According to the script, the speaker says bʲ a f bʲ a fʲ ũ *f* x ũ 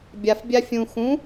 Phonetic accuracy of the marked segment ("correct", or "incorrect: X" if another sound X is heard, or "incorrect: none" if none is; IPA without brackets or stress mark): incorrect: none